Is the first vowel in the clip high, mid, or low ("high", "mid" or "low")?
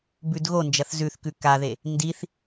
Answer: high